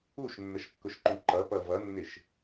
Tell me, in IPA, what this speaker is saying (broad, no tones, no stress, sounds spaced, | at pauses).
u ʃ nː ə ʃ kː ʊ ʃ ǃ ũ ǃ ʌ p ʌ v ʌ nː ɪ ʃ